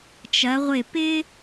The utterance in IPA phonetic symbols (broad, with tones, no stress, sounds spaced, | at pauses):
t͡ʃ ɐ˩˧ ʁʷ ɪ˧˩ p ɪ˥